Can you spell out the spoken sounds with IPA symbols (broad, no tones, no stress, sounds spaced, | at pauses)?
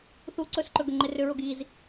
θ u ǀ ɵ s ǃ ɵ ɡ ʏ ŋ͡ǃ e r ʏ ɹ o ɡ i z